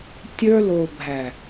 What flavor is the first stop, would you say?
plain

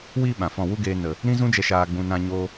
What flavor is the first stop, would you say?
implosive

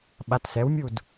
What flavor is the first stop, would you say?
implosive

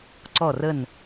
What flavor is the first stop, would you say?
click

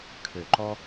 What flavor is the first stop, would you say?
aspirated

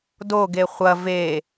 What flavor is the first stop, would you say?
plain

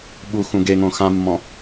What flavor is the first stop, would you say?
implosive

